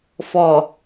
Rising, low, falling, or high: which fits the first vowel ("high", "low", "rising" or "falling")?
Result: low